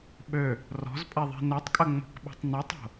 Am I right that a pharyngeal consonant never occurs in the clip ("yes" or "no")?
yes